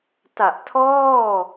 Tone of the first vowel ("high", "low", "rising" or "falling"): low